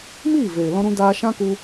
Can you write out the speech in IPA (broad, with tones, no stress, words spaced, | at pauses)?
miː˦˨veː˨lɔ̃˧ɾũ˧ daː˧ʃã˦ku˧